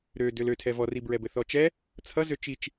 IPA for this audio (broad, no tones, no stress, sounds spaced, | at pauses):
ɾ ø d ø l ø tʰ ɛ v ɔ r i b ɹ ɛ b ɘ θ ɔ t͡ʃ ɛ | t͡sʰ ʌ z ø t͡ʃ i t͡ʃ